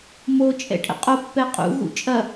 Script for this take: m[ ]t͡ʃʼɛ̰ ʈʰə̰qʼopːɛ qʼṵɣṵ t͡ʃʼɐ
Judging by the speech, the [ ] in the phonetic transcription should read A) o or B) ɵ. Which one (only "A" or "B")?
A